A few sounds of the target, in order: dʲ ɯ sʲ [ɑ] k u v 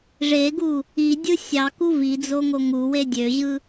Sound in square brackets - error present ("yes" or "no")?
no